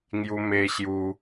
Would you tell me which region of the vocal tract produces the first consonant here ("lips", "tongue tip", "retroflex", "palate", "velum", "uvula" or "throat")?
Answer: velum